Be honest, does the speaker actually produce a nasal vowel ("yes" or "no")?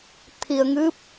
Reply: no